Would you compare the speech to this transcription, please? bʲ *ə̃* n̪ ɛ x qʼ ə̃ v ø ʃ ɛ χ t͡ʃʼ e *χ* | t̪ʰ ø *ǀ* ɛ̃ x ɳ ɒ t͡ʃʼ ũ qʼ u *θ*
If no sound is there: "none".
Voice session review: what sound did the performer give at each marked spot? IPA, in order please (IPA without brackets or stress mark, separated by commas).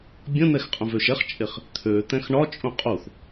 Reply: ə̃, χ, t̪, θ